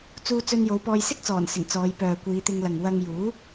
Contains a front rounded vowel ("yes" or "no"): yes